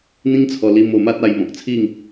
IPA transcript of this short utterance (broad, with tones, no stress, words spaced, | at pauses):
n̪ĩ˦ŋt͡sʰɔ˧li˧m o˧ma˦t̚a˧j mɔ̃˨k̚t͡sʰi˥˧ŋ